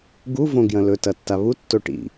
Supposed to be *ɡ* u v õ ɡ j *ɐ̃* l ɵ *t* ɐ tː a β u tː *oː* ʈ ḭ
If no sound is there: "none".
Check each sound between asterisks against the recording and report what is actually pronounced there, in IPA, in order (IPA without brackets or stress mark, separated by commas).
ɡ, ɐ̃, t, o